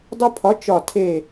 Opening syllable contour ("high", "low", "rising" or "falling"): high